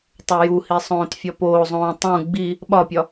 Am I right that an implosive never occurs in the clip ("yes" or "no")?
no